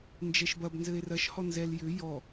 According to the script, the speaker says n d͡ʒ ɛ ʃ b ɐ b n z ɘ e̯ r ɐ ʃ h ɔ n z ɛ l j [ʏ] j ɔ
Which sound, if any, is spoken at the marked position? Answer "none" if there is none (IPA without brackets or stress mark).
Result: ʏ